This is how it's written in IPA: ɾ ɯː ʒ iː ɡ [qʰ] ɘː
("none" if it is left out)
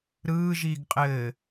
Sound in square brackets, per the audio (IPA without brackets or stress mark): qʼ